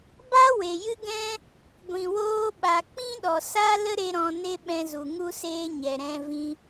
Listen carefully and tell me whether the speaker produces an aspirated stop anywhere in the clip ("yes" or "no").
no